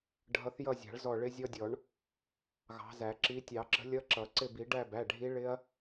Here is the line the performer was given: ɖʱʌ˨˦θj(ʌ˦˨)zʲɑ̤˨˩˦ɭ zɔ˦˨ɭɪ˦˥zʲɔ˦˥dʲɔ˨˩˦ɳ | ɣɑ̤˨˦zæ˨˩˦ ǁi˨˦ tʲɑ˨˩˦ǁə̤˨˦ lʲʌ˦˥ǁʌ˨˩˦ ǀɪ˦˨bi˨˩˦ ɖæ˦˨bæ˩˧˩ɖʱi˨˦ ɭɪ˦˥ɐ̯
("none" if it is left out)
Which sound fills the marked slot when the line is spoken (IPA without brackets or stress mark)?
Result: ʌ˦˨